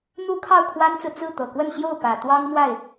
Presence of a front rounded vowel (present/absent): absent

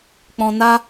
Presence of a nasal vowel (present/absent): present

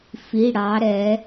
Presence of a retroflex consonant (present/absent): present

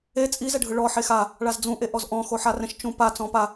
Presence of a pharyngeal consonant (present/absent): present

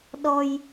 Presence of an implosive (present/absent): present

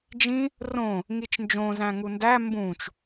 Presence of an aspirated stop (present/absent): absent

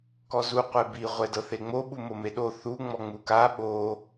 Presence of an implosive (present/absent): present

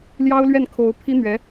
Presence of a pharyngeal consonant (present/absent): absent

